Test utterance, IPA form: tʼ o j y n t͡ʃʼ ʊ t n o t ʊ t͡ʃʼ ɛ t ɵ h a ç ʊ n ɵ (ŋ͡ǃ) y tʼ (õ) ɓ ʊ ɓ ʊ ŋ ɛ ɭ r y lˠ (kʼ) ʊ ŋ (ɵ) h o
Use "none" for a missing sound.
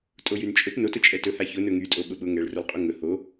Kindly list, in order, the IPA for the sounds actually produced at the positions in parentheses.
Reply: ŋ, o, qʼ, ɵ

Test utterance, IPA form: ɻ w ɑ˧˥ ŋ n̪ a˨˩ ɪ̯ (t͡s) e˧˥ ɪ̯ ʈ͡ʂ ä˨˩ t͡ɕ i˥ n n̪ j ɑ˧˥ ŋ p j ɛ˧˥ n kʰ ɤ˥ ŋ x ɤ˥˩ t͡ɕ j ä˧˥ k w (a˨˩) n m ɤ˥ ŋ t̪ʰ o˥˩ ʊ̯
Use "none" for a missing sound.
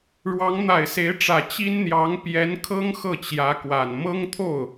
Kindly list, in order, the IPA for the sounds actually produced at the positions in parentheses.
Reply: s, a˨˩

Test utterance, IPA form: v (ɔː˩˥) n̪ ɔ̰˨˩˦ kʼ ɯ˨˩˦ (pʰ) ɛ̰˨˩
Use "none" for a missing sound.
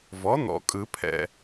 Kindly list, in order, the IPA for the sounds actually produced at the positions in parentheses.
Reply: ɔ˩˥, pʰ

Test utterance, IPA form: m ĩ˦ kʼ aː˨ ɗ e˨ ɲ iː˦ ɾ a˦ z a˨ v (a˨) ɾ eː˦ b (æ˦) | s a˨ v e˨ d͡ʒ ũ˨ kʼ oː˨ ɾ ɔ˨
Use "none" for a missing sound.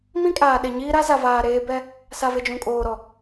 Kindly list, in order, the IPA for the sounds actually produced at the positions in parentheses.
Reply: aː˨, ɛ˦

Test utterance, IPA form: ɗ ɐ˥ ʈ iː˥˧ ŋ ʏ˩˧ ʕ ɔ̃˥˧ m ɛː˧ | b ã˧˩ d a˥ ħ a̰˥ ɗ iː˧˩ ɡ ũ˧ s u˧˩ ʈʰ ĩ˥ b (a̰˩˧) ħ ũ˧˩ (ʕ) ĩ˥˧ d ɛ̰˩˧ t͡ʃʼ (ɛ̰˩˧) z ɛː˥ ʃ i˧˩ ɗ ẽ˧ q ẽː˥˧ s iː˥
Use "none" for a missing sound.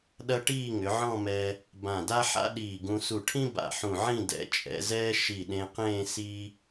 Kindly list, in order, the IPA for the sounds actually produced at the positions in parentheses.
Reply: a̰˧˩, ʕ, ɛ̰˩˧

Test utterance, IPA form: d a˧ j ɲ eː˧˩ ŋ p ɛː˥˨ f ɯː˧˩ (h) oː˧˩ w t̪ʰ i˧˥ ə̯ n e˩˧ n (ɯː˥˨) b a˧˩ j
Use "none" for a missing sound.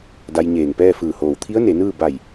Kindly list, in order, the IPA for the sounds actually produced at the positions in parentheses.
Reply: h, ɯː˥˨

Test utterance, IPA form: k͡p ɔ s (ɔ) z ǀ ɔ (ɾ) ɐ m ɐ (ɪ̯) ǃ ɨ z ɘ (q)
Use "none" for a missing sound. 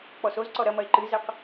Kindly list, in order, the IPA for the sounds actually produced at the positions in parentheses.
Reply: o, ɾ, ɪ̯, q

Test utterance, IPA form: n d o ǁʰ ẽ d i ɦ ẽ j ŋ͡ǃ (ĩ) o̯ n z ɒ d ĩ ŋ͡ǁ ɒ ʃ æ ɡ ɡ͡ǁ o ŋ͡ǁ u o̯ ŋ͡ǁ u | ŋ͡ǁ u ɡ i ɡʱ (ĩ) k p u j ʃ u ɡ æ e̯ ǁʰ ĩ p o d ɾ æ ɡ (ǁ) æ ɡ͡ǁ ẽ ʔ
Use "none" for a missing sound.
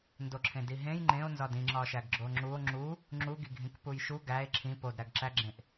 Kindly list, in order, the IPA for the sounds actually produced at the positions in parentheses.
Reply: ẽ, ĩ, ǁ

